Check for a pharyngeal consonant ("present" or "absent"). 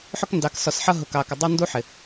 present